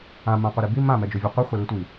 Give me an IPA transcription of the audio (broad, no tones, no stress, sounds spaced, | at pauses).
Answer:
ã m ã qʷ ɛ ɾ i b i m ã m ɛ d͡ʒ o vʲ ʊ qʷ i χʷ ɛ l i tʷ i